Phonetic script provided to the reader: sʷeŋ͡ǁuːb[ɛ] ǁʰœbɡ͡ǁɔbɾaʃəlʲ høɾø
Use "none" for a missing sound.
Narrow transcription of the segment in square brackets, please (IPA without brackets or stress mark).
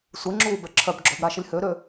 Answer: ɛ